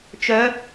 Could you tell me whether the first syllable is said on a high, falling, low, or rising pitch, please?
rising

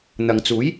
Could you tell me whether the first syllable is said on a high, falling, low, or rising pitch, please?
low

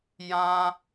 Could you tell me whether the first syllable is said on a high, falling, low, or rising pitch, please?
high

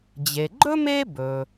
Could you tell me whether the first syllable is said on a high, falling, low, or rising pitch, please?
low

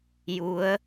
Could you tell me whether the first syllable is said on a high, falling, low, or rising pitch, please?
rising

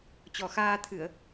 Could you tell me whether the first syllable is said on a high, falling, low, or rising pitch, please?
low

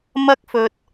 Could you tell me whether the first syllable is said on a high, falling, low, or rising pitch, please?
high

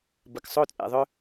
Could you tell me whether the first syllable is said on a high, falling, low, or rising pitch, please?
low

